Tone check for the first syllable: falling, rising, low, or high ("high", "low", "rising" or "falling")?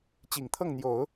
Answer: low